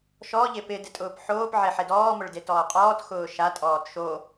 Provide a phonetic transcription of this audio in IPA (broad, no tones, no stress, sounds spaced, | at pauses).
ʃ ɔ ʎ e p ɪ d ɪ tʼ ʊː p ħ oː p ʕ e ħ e d ɔː m ʊ ɭ d e t ɔː qʼ ɔː t x ʊː ʃ a tʼ ɔː t ʃ o